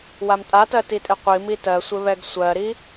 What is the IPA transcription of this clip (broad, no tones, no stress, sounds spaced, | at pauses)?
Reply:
w a m tʼ a t ɜ t i tʼ ɪ qʷ i m i t ɜ sʷ ɪ β ɛ ɡ sʷ ɜ ɾ i